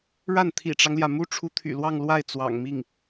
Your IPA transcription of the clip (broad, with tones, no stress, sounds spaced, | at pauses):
ɻ a˥˩ n t̪ʰ ḭ˨˩ ʈ͡ʂ ɑ˦ ŋ l j ä˩ m u˥ ʈ͡ʂʰ u˧˥ t̪ʰ y̰˨˩ l w ɑ˥˧ ŋ l w a˥˩ ɪ̯ t͡s w ɑ̰˨˩ ŋ m i˥˩ ŋ